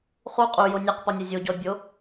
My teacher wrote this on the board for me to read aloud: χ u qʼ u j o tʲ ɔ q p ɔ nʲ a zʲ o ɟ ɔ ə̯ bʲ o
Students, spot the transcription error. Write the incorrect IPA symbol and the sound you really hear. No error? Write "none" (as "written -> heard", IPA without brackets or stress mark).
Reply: tʲ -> nʲ